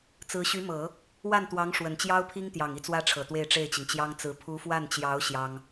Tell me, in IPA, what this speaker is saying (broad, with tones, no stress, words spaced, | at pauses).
t͡sɹ̩˧˥ɕy˧˥mɤ˨˩˦ | wa˥˩nt̪wɑ˧˥ŋ ʂwə˨˩nt͡ɕjɑ˥ʊ̯pʰi˥ŋt̪jɑ˨˩ŋ i˥˩t͡swä˥ʈ͡ʂʰɤ˨˩ t̪we˥˧ɪ̯ʈ͡ʂe˥˩ɪ̯t͡ɕi˩ŋt͡ɕjɑ˥ŋ t͡sɹ̩˧˥ pʰu˧˥fwa˥˩nt͡ɕjɑ˧˥ʊ̯ ɕjɑ˥ŋ